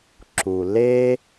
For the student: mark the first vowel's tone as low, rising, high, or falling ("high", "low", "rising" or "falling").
low